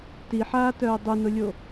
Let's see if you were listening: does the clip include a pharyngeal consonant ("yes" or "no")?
yes